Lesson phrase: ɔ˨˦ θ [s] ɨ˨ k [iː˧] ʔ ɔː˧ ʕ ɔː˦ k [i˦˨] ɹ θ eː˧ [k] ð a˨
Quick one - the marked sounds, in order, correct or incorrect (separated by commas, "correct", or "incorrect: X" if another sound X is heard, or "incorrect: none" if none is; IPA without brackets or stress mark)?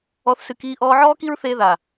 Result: correct, correct, incorrect: i˦, incorrect: none